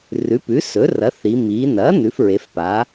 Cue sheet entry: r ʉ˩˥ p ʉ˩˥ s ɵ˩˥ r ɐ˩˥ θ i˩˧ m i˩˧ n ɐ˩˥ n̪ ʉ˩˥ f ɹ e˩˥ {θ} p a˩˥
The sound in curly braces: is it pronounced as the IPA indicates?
no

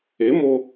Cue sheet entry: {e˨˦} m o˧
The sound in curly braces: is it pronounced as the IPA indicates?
yes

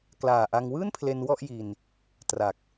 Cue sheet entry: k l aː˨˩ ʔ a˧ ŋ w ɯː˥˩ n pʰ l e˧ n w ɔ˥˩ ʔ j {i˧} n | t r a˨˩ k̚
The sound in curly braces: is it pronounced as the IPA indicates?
yes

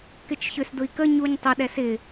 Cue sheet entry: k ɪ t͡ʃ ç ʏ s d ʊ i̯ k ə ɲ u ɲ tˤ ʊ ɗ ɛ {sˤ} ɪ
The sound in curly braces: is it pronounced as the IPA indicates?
no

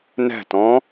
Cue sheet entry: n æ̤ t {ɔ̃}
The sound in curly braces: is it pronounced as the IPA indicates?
yes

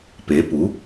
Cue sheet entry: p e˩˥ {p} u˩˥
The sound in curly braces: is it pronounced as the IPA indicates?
yes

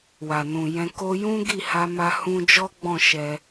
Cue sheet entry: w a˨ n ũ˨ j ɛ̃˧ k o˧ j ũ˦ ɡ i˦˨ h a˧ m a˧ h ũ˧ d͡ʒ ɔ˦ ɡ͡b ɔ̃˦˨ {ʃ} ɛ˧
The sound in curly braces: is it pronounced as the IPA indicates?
yes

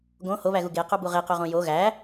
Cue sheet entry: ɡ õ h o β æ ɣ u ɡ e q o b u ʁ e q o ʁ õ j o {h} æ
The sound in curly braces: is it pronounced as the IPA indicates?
no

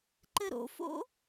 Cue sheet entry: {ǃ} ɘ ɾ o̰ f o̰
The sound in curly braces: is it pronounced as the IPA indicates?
yes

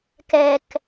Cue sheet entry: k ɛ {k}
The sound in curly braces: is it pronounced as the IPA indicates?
yes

